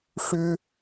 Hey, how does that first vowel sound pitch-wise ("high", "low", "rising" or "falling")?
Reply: high